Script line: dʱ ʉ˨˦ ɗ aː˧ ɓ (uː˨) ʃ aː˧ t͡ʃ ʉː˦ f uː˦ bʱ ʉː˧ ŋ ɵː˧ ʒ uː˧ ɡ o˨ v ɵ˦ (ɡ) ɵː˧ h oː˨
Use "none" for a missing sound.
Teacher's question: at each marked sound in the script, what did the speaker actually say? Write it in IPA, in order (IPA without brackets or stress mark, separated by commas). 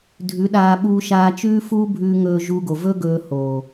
uː˧, ɡ